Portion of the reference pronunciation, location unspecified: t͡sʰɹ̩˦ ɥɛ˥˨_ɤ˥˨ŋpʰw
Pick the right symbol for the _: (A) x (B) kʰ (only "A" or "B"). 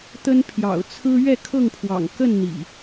B